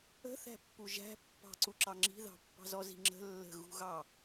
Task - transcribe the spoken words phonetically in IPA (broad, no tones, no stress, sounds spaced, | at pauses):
ə̤ θ æ̤ pː u ʒ æ̤ pː ɑ̤ ǀ u ǁ ɑ ŋ͡ǁ i̤ ð ɑ̤ pː ɑ̤ z ɔ z i̤ ŋ͡ǁ ə̤ lː ə̤ ɣ ṳ ɣ ɑ